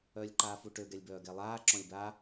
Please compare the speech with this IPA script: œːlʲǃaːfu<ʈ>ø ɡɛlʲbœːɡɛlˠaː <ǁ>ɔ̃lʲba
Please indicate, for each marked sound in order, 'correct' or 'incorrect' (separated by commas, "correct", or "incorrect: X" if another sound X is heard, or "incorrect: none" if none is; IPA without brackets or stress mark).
correct, correct